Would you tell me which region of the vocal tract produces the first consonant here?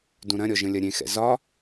tongue tip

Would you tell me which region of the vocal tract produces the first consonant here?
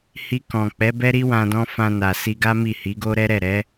throat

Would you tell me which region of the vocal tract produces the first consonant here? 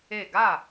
velum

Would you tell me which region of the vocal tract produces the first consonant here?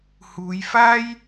throat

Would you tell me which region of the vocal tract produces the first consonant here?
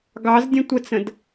velum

